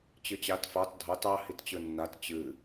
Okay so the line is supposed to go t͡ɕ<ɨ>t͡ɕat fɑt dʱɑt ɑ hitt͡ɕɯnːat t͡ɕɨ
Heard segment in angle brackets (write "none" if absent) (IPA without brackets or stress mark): ɨ